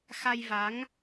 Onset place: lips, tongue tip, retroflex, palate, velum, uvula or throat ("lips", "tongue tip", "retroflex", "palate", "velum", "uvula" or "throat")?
velum